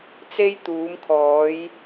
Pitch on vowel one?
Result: high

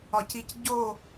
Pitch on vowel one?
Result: low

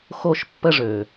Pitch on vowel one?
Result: high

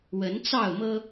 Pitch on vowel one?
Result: rising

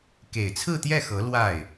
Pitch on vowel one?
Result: low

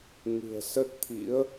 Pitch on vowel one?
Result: low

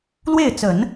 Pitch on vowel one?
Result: falling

